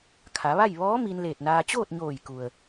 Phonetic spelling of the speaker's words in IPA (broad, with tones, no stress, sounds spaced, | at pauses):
kʰ a˩˧ ʋ a˥˨ j ʋ ɔː˧˥ m i˧ n l eː˧˩ t̚ n aː˧ t͡ɕ oː˥˨ t̚ ɲ oː˧˩ j k u˩ ə̯